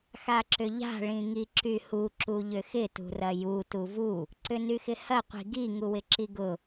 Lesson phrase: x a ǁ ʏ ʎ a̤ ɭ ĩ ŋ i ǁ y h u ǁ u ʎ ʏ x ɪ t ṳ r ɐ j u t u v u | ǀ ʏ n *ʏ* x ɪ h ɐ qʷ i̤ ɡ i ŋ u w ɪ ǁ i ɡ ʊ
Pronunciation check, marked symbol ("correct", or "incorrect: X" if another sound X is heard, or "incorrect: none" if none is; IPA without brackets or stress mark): incorrect: y